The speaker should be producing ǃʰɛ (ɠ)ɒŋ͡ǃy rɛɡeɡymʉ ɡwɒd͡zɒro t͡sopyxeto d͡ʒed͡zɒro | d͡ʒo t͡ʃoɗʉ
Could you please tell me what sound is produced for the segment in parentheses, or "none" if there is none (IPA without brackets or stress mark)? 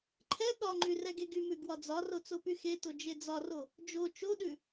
ɠ